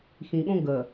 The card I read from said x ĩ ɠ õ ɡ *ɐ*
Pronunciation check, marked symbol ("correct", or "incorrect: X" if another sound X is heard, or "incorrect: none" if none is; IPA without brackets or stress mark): incorrect: ə